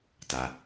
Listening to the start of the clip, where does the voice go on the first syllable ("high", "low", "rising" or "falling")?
low